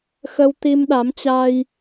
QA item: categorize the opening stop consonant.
plain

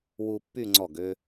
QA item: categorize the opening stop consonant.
plain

